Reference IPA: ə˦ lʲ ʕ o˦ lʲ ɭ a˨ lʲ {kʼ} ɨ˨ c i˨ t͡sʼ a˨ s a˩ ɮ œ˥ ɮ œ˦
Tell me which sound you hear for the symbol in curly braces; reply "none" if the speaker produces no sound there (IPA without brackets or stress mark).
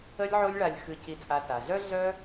x